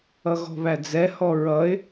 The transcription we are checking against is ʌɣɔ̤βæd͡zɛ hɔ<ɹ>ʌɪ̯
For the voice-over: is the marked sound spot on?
yes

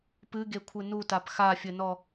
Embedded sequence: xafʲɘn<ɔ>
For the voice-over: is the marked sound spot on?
yes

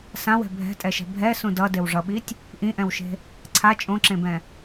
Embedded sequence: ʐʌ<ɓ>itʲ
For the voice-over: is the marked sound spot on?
yes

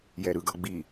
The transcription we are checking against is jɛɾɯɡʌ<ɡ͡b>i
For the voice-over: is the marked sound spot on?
yes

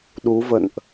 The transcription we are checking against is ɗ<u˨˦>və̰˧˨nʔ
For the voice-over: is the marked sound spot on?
yes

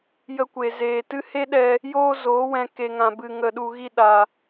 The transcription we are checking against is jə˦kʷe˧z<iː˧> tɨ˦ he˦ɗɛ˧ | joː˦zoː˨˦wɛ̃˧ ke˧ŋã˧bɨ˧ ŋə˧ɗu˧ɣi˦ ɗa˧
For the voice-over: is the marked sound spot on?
no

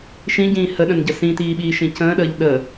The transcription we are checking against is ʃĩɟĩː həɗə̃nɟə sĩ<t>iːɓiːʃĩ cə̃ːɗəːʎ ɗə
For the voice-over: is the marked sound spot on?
yes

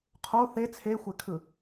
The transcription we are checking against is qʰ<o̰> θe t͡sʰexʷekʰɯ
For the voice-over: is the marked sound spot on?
no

